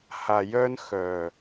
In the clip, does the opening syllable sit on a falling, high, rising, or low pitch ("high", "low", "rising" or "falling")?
low